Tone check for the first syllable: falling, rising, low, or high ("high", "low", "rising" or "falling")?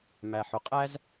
low